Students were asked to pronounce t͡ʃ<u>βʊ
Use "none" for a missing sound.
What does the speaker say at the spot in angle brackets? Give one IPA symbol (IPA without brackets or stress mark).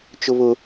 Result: ʊ